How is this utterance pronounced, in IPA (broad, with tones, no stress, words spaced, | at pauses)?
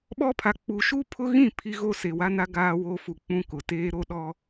ɓɔ˦pʰa˨ k͡pu˨ʃu˦pʰʊ˦ɣĩ˦˨ pʰi˦ɣo˦ se˨wa˦na˦ ɡaː˦wo˦fu˨ k͡pũ˦kʊ˨teː˦ ɾo˦ɗɔ˦